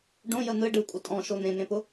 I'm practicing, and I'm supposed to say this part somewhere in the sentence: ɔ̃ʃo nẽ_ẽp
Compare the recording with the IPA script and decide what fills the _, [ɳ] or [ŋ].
ŋ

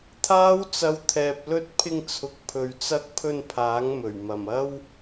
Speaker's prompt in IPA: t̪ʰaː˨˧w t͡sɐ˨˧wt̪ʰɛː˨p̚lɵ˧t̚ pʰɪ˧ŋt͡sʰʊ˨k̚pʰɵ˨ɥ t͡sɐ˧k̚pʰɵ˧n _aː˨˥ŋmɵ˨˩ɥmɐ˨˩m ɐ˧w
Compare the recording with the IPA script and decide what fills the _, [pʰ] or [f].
pʰ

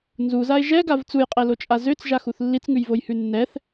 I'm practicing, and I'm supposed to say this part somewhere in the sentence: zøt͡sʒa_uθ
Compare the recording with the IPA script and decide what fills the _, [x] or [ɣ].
x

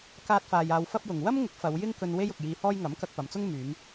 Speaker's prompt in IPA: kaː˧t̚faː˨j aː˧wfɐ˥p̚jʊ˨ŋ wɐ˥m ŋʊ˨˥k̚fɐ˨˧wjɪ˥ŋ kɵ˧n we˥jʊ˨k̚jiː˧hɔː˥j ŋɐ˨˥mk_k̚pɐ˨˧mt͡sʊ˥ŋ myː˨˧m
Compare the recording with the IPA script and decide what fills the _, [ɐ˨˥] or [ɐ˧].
ɐ˧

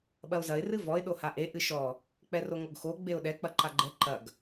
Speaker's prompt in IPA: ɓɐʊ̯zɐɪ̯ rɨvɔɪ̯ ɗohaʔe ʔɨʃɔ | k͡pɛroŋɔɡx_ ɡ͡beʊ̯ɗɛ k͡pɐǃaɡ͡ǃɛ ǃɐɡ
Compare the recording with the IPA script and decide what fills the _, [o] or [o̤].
o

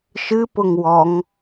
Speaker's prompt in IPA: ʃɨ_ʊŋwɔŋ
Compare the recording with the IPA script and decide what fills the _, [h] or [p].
p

